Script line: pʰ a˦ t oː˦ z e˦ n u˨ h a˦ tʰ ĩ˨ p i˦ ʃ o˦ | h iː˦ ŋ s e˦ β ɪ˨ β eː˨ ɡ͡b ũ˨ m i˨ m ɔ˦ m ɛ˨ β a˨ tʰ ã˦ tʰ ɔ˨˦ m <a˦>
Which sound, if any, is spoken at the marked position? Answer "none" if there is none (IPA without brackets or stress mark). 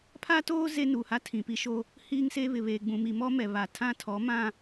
ã˦